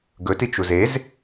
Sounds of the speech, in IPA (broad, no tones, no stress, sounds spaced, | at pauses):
ɡ ɵ t i t͡ʃ u z e z